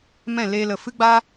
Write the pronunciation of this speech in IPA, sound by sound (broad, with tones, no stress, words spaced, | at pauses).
mɛ̃˦˨leː˧lə˨ fɨ˦ɡ͡baː˦